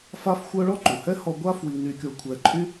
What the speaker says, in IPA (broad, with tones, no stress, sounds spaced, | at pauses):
f a˥ f xʷ œ˥ ɭ ɔ˥ ǃ u˩ h ɛ˥ h ɔ˧ ɡʷ a˥ f w i˧ n y˧ kʲ o˧ kʷʰ ɛ˧ ǃʼ y˥